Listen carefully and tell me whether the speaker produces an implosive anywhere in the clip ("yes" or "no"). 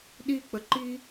yes